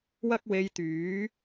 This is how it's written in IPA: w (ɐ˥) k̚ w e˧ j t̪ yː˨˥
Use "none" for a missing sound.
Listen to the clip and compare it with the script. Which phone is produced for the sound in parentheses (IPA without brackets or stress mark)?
ɐ˥